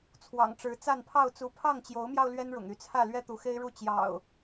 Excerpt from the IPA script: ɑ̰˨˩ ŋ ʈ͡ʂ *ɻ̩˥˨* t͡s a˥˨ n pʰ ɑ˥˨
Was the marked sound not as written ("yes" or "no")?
yes